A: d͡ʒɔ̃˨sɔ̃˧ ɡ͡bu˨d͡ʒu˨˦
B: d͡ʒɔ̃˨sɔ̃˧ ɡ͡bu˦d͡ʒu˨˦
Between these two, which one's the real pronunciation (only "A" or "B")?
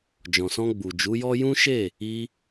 A